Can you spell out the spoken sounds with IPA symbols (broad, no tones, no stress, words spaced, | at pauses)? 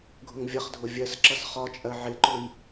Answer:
ɡʱʊŋvʲʌχdʱʊ vʲɜsǁʌs χɒt͡ʃʼɜ ʕɪǃʊj